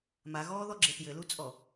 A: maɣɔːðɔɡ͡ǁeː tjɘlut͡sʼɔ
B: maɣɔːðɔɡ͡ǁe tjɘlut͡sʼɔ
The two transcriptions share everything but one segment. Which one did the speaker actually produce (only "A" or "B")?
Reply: B